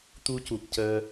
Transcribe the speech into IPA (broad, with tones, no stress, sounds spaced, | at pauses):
t̪ u˧ c u˨˩ p̚ c əː˧